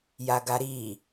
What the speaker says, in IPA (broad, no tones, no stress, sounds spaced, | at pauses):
j a ɡ a ɾ i